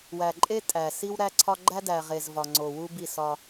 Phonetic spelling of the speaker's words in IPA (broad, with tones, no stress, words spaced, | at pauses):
wæ˨ǃʼe˦tʼæ˨ si˦wɾæ˦ǀʰɒ˦ ɡ͡ǃæ˦dæ˨ ʁe˨z vɒ˨ŋ͡ǀo˨wu˦bi˦˨ sɒ˦